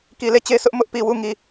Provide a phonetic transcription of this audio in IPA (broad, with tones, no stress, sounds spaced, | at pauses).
k i˨ l e˦˨ t͡ɕ e˦ sʰ ʊ˦ ʔ m ʊ˦ ʔ p i˨ w u˦˨ ŋ i˦˨